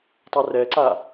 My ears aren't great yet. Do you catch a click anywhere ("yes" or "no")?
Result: yes